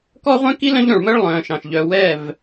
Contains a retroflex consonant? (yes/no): yes